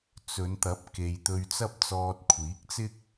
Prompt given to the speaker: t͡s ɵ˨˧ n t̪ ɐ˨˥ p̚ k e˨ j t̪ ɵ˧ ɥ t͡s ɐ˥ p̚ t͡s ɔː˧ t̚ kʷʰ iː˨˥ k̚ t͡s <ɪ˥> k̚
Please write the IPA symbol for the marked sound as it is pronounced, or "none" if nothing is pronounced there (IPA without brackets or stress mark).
ɪ˥